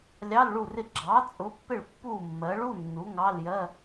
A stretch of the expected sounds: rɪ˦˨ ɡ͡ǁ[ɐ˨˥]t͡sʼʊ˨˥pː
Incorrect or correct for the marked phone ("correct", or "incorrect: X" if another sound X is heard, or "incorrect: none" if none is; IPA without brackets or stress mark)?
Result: incorrect: ɑ˨˥